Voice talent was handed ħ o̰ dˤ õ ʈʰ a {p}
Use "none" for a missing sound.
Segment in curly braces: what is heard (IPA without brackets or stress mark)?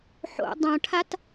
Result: t